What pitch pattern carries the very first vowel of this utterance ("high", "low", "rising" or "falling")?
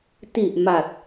low